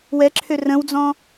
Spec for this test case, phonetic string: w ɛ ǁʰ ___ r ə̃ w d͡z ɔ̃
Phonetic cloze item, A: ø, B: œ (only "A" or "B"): A